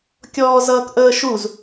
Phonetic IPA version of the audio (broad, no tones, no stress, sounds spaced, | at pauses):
kʲ ɔː z ʌː k ʔ əː ʃ u z